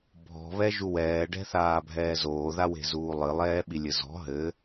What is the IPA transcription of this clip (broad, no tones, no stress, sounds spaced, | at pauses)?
bʱ ɔ̤ β ɛ ʒ u w ɛː ɖ ɛ̤ θ aː bʱ ɛː z oː ð a w e̤ z uː lˠ ɨ lˠ ɛː ɓ i lʲ ɘ z ɔ̤ ɦ ɘ